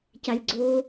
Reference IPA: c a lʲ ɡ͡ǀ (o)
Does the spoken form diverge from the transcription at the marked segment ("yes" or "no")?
no